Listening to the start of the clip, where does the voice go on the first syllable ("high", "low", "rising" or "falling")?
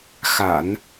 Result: low